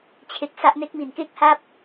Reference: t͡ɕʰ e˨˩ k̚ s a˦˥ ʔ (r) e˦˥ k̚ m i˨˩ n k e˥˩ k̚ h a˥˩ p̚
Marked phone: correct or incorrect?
incorrect